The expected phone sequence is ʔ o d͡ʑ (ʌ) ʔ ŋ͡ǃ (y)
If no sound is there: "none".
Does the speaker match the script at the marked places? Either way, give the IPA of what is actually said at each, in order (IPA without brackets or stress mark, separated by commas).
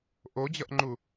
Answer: ʌ, u